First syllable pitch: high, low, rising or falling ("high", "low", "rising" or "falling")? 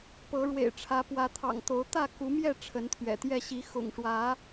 rising